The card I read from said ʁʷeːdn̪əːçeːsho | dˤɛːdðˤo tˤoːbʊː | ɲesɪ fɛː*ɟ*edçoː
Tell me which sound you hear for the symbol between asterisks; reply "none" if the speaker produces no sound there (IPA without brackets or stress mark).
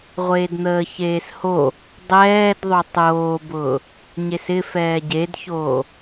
ɟ